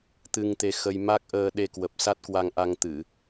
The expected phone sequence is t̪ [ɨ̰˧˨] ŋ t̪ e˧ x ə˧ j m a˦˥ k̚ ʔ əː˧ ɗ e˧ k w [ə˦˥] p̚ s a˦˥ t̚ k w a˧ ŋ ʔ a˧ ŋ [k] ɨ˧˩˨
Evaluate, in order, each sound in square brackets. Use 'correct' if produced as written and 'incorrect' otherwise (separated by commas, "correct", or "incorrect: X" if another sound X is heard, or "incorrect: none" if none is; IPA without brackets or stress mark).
incorrect: ɨ˧, incorrect: ə˨˩, incorrect: t̪